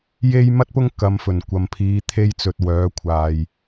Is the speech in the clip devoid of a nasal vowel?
yes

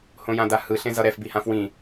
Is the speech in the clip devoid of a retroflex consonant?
yes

